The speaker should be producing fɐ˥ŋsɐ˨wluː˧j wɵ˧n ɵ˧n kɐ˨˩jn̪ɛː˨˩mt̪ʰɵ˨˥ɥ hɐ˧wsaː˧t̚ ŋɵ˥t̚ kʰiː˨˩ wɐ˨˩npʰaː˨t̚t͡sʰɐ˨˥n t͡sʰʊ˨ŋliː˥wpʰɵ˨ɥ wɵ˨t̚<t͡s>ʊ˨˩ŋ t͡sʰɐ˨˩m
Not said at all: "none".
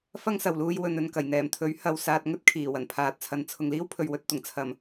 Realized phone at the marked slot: t̪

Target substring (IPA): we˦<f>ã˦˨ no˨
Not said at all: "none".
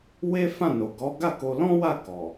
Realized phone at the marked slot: f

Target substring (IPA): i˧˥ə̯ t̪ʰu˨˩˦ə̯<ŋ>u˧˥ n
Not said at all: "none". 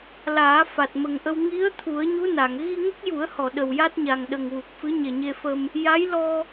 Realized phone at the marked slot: ɲ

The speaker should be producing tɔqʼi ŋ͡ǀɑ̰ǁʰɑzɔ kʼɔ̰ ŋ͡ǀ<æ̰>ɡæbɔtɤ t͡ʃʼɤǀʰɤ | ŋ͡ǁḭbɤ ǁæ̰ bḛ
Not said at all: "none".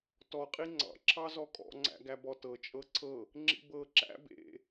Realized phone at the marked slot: æ̰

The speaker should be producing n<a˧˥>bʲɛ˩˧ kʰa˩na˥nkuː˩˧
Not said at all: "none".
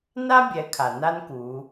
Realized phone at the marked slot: a˥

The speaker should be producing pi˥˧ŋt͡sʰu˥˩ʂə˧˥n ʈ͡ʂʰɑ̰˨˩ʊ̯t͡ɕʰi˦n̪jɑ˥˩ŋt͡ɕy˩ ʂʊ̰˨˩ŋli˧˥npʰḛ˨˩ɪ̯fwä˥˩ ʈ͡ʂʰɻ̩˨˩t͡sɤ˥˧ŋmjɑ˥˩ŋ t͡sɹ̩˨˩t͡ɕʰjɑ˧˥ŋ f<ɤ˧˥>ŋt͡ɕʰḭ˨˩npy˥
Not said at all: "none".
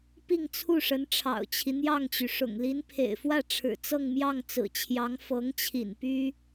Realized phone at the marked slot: ɤ˧˥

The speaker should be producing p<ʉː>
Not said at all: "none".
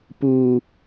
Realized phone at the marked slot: uː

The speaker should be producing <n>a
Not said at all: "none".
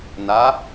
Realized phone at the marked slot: n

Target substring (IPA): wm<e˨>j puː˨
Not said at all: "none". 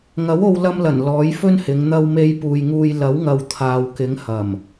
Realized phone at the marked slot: e˧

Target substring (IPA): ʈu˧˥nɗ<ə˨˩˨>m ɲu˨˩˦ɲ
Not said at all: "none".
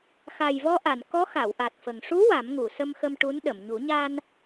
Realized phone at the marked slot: ə˨˩˨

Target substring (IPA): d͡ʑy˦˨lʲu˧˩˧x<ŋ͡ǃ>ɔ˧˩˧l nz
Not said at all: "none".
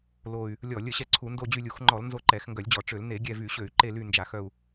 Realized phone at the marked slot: ŋ͡ǃ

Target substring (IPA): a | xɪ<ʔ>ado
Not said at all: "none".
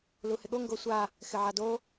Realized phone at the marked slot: ʕ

